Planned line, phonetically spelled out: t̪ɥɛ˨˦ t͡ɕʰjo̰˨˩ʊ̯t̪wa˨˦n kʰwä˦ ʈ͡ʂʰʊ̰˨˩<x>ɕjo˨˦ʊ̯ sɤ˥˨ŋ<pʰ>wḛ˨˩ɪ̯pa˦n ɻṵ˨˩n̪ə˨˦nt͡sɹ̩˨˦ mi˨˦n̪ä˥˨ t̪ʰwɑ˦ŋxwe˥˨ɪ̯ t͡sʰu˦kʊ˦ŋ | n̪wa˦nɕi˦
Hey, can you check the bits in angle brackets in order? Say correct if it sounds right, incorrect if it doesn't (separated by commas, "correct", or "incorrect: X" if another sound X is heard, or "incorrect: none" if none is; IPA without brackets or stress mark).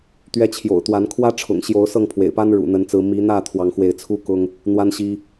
incorrect: ŋ, correct